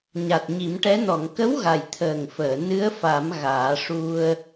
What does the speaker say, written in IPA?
ɲa˨˩t̚ɲi˨˩˦mʈɛ˧˥ nɔ˨˩˨ŋkə˧˥wɣa˨˩˨j t̪ʰəː˨˩ŋfəː˨˩˨ nɨ˧˥ə̯fa˨˩˦m ɣaː˨˩˦ ʂu˧ə̯

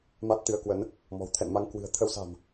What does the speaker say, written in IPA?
ma˦˥t̚t̪ɨ˨˦ə̯kwə˨˦n | mɔ̤˨˩w t̪ʰɛ̰˧˨nma˧ŋ kwɨ̤˨˩ə̯ t̪ʰə˧wsa̤˨˩m

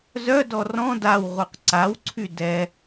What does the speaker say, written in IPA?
zœdɔ rɔ̃ dawʁuq ǀawǀʰy dɛ

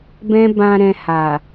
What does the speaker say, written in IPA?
bɛ̃˦ bã˧ ɾɛ̃˧ha˨

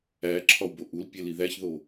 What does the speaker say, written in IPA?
æǁʰɒwbo ʔulpʲeli ðæçðo

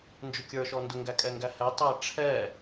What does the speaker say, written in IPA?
nd͡ʒʊkʲə˞ ʃɔndʊŋɡækʼɛ ŋɡæhɛtˤæ ʈ͡ʂʰɛ

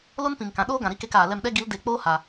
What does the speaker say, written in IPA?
lo˦n pĩ˨ŋkã˨ ɗoː˦ɡã˨ɾi˦ ke˧kaː˨lɛ˧mɗɛ˦ ɡi˨˦l de˨˦k͡poː˦ ha˨

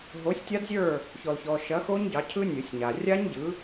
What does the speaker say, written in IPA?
ɦo˨˥sʲtʲa˦˥dzʲə˞˥˨ | çɔ˨lçɔ˨ ʃɐ˨˥xo˦˥ɲ ɟɑ˨˥cʰɯ˦˥nʲɯ˨˩˦sʲɲa˨ rʲa˦˥ɲɟɯ˨˥

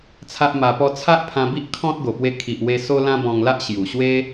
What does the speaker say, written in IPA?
t͡sʰa˦ʔma˧pɔ˦ t͡sʰa˦ʔpʰã˧bi˦ʔ kʰɔ̃˦t̚ ɡo˨˩pwe˧ kʰi˨ʔ we˧ so˦lã˦bɔ̃˧ŋla˦ʔ ɕju˨˩ɕwe˦

